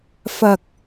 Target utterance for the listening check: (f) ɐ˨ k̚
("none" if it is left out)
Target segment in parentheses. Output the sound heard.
f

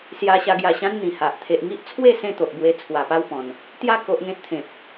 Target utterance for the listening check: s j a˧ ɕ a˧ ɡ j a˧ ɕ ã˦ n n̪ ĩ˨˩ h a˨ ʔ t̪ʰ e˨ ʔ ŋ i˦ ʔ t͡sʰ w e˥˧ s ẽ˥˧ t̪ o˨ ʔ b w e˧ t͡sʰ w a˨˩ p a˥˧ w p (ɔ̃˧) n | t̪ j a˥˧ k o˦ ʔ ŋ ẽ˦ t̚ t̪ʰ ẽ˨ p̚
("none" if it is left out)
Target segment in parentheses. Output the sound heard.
ɔ̃˨˩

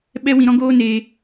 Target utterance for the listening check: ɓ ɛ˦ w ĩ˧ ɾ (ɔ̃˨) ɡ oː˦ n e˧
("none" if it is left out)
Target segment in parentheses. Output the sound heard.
ɔ̃˦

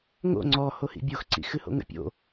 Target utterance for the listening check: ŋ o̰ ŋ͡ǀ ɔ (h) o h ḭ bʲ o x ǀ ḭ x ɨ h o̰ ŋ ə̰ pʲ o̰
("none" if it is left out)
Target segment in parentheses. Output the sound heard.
h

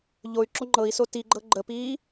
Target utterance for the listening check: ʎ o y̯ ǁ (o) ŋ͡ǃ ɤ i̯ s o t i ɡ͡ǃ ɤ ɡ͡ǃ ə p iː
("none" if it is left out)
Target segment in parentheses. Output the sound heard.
o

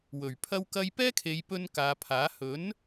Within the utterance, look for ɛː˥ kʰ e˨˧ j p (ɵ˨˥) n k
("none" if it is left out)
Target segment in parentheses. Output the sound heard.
ɵ˧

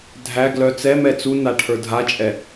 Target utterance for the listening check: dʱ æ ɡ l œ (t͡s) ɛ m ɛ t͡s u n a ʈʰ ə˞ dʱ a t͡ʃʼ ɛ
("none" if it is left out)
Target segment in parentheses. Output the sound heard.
t͡s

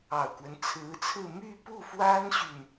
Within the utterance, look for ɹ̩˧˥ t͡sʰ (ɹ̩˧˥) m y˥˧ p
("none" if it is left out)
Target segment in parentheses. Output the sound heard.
ɹ̩˥˧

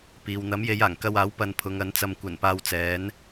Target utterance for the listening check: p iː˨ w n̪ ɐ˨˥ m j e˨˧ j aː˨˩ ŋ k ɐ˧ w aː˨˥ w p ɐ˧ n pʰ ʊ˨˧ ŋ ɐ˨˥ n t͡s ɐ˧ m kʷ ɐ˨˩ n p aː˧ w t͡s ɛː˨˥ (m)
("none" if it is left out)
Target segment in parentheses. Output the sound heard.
n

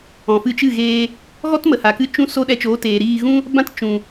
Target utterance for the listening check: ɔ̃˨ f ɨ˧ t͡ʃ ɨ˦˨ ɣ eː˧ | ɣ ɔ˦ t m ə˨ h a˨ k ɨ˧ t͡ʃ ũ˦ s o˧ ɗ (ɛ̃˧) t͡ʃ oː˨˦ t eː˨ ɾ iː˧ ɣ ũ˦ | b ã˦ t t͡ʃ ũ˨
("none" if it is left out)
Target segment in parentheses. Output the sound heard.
ɛ˧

